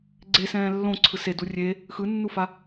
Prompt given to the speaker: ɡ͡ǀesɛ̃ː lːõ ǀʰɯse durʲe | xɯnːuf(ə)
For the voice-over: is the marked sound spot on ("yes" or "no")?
no